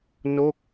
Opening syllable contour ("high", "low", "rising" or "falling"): falling